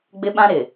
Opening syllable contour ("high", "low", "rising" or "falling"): high